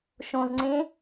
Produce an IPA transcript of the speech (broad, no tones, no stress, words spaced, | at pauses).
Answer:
ʃõzŋ͡ǀẽ